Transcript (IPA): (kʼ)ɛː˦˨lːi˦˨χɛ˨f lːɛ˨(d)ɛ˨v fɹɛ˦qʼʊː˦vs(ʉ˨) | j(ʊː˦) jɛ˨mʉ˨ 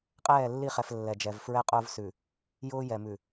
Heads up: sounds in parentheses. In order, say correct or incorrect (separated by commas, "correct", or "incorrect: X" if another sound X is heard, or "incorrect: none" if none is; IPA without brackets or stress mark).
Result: incorrect: qʼ, incorrect: d͡ʒ, correct, correct